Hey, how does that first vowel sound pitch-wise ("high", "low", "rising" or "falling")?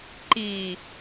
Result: low